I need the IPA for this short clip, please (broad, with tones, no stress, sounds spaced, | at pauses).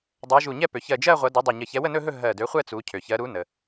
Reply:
dˤ ɜ˨˦ ʒ u˧˩ ɲ ɛ˥˧ p ø˩ ç ɜ˧˩ d͡ʒ ɜ˥˧ ʁʷ ɐ˨˦ d ɵ˨˦ dˤ ɵ˧˩ ɲ ə˧˩ ç ɛ˨˦ w ə˥˧ n ɵ˥˧ ɦ ɵ˥˧ ɦ ɜ˧˩ d ø˨˦ χʷ ɛ˥˧ t͡s u˨˦ cʰ ø˩ ç ɜ˨˦ ɾ u˨˦ n ə˩